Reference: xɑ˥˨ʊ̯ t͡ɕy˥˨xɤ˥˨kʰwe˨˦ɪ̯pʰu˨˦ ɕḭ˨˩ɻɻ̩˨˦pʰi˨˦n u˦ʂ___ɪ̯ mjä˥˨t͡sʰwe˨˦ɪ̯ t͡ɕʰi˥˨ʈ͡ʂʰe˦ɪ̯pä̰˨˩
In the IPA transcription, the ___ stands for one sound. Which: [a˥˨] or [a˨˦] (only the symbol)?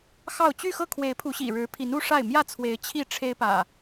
a˥˨